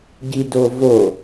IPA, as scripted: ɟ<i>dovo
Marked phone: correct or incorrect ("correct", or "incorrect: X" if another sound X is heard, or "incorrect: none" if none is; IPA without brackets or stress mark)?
correct